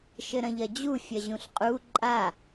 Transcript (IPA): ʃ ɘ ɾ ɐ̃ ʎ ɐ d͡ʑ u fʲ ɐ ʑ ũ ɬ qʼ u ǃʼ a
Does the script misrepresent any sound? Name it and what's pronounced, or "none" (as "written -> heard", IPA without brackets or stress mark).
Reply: none